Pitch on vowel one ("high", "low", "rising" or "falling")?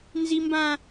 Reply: high